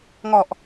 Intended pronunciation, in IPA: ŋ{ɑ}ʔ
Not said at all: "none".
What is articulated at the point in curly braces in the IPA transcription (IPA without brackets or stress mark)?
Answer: ɔ